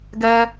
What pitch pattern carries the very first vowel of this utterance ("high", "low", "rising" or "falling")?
high